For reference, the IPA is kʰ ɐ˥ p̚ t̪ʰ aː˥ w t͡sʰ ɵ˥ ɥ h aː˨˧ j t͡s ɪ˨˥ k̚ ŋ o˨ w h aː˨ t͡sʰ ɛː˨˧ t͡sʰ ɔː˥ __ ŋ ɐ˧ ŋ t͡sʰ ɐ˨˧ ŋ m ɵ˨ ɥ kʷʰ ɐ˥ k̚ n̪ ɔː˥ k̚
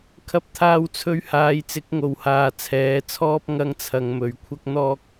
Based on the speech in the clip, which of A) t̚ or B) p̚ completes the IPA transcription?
B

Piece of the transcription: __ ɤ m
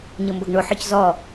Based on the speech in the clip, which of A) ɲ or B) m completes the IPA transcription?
A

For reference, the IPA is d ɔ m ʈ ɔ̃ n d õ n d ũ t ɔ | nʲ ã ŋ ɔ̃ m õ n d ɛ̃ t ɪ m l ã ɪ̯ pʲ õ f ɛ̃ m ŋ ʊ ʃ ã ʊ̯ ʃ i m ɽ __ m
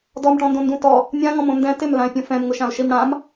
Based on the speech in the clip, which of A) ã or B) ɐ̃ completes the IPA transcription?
A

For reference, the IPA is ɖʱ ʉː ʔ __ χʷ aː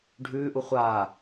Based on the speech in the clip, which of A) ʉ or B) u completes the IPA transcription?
B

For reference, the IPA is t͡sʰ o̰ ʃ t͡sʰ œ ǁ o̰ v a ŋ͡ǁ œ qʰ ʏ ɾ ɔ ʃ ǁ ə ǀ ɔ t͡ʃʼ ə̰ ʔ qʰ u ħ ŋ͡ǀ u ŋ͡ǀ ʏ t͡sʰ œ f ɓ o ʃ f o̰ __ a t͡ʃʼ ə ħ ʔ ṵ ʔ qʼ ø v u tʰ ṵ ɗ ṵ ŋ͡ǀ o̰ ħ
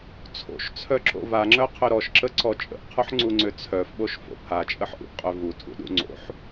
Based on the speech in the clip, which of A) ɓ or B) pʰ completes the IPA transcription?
B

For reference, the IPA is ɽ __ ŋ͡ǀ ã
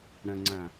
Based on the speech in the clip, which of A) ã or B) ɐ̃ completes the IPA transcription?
B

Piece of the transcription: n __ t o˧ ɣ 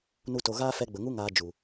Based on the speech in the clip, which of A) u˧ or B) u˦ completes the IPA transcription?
B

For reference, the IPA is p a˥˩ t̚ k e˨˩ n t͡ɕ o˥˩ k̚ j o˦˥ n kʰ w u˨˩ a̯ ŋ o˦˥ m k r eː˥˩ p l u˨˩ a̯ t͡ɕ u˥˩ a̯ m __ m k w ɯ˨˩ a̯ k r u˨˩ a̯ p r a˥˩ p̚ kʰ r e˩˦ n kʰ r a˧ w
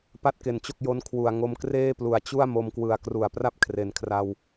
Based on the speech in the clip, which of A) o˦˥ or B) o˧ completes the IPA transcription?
B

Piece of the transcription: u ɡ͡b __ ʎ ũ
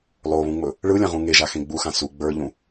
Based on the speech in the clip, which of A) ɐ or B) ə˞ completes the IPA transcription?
B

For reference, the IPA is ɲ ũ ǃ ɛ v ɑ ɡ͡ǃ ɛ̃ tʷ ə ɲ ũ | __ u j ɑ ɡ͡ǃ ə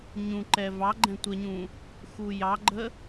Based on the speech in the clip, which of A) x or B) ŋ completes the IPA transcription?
A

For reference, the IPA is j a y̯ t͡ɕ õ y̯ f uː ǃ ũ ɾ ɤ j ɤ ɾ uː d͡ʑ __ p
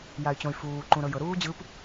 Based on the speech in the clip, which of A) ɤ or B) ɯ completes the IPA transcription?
B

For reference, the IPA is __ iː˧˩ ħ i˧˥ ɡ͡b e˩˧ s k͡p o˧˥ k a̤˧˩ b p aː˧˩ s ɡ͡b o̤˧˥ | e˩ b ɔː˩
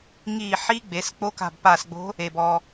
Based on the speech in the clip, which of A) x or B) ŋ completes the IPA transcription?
B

